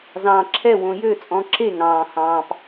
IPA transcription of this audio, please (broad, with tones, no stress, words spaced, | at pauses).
zɑ̃ː˨ǁʰɛ˦˨ wõ˨jø˦˨t͡sʼɔ̃˨ǁe˦˨ ŋɑ̃ː˨hɑ̃ː˨p